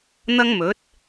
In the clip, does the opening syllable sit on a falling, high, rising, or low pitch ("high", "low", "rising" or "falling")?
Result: high